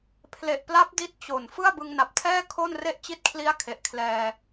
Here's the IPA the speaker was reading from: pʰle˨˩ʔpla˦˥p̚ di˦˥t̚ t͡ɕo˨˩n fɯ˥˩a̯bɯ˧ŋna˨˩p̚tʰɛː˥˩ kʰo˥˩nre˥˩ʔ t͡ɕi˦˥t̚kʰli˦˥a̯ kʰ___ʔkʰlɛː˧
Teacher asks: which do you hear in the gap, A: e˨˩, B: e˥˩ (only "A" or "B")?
A